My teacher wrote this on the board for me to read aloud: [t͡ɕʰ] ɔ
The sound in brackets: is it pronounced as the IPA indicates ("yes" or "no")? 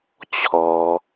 yes